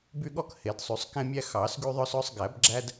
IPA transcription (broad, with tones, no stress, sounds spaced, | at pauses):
b y˦ ɠ ɔ˦ k h e˨˩˦ d sˤ y˨˩˦ sˤ k ɛ̃˦ mʲ æ˦ x ɑ˨˩˦ s ɡ y˦ ðˤ œ˦ s œ˦ sˤ ɡ æ˨˩˦ b ɡ͡ǁ æ˦ d